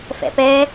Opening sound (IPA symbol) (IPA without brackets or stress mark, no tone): f